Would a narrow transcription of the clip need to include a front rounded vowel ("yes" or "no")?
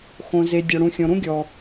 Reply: no